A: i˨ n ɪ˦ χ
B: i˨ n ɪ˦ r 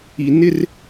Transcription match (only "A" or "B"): B